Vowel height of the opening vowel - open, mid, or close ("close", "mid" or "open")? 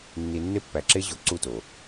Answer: close